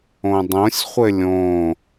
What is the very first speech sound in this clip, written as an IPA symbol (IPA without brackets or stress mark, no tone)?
õ